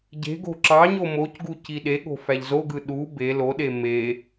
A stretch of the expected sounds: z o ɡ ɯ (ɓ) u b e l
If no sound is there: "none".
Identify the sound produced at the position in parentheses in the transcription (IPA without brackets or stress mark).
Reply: ɗ